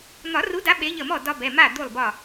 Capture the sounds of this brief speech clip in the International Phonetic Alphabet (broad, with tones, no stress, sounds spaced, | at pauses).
n̪ ɒ˨˩˦ r u˨˦ d a˨˦ ɓ e˨˦ ʎ ə˧˩ m ɔ˥˩ d ɒ˦ b ɛ˩˧˩ m a˥˩ d̪ u˧˩ lˠ b ɒ˧˩